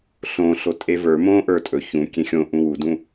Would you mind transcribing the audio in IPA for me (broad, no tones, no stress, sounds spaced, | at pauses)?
ɬ õ ɬ o tʼ e v ə˞ m õ ʔ ə˞ tʼ ɵ ç ũ kʲ ẽ xʲ õ ʔ ũ w u d ũ